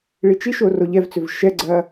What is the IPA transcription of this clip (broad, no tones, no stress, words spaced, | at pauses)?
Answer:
ɭit͡ʃiʃo roʎɛvt͡sʏv ʃɛɡ͡ǀɐ